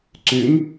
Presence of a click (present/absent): present